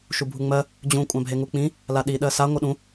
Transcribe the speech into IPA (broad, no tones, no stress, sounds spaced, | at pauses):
ʃ u bʱ u ŋ͡m ɜ | d͡ʑ ũ kʷʼ ã bʱ e ŋ u k͡p ĩ | l a ɗ i ɗ ɜ s a ŋʷ ɜ ɗ ũ